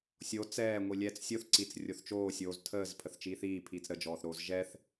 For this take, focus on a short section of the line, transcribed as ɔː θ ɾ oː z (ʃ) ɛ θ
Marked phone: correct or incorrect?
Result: incorrect